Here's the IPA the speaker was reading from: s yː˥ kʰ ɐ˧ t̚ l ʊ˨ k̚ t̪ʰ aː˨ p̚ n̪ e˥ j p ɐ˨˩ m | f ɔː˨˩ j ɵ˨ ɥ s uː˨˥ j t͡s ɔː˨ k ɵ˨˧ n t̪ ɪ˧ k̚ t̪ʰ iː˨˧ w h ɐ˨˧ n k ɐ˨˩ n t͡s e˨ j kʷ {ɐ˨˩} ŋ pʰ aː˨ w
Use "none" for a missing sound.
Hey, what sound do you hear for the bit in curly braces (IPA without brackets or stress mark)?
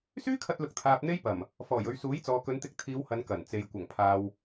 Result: ɐ˨˩